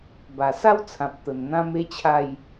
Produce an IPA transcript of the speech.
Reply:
ba˨˩sa˦wt͡sʰã˨p̚ t̪ə˨˩nn̪ã˦me˦t͡ɕʰa˥˧j

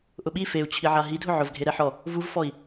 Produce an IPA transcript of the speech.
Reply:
ʔʊɓi feu̯t͡ɕʰi ʕaɦidʱʊ ʕʊvɡʱe ɾɛħɔ | vuvfɔi̯

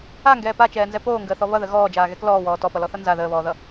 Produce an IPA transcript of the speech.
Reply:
aŋɡɛː pat͡ʃɛːnzɛ poːŋɡəːθɔ βʌðə ɣɔːd͡ʒaːɣɛk lɔːwɔː tɔpʌlɔθʌ nza ðəːβɔːðʌ

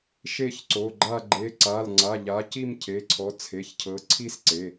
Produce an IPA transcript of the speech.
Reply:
ʃe˥˧çǀo˩˧˩ɡ͡ǃa˥˧ ɡ͡ǃe˩˧˩ǀa˩˧˩lŋ͡ǀa˩˧˩ʎa˨˦ ci˥˧mcʰe˩˧˩ǀʰɔ˨˦ t͡sʰe˩˧˩çcʰɤ˨˦ǀʰi˥˧sǀe˩˧˩

